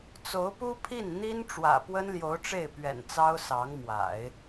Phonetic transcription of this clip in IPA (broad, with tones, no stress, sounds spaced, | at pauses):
t͡s o˧˥ ʊ̯ p u˥ pʰ i˥˩ n n̪ i˥ n ʈ͡ʂ w ä̰˨˩ p w ə˥ n l j o˧˥ ʊ̯ ʈ͡ʂ e˥˩ ɪ̯ p ɥ ɛ̰˨˩ n t͡s ɑ˥ ʊ̯ s ɑ˧˥ ŋ m w a̰˨˩˦ ɪ̯